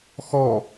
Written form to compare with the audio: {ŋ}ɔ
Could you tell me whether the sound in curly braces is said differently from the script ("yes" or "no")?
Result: yes